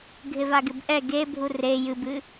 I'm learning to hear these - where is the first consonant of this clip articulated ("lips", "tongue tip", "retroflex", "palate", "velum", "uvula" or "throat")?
velum